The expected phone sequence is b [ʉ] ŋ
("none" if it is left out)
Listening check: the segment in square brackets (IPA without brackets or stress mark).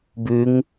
ʉ